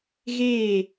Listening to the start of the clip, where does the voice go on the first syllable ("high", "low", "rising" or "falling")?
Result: falling